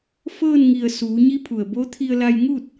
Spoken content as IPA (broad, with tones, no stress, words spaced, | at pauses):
fɤː˥˨nŋi˧˩ə̯suː˩˧ ɲi˧˥pʰu˩ə̯bo˧˥t̪ʰi˧ə̯ la˧jŋu˥˨t̚